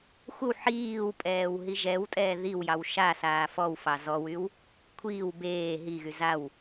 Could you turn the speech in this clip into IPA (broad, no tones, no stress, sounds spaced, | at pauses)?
xʷ ə w ħ iː w pʼ ɛː w ɦ i ʒ ɛ w tʼ ɛː ð i w j ɑ w ʃ a s aː f ɔ w f ɑ z ɔ w y w | kʷʰ iː w b eː ɦ i ɣ y z a w